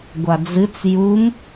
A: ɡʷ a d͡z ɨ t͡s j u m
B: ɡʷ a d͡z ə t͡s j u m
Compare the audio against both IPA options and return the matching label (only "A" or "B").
A